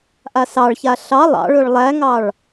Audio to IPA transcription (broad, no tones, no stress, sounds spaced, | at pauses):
ʔ a s ɑ ɭ ç a ɬ ɑ lˠ ɑ̰ ɭ ɵ ɭ lˠ æ ŋ ɑ ɭ